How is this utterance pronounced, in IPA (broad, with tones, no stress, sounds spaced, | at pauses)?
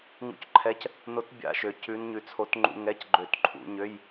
ŋ ṵ˧˥ c ǃʰ ɛ˧˥ c | n o˧˥ t bʲ a̰˧ ʃ ø˩˧ c ʉ˧˥ n ɲ ʉ˧ t͡sʰ o˧˥ t ŋ͡ǃ ṵ˧˥˧ ŋ ɛ˧˥˧ c ɡ͡ǃ ø˧˩˧ t ǃʰ ṵ˧˩˧ ɲ ø˧˥˧ j